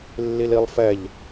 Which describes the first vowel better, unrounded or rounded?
unrounded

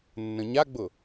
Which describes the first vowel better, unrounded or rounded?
unrounded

